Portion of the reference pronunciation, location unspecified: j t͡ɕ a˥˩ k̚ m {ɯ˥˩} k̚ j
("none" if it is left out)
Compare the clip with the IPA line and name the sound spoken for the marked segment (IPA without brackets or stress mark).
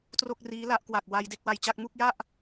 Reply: u˥˩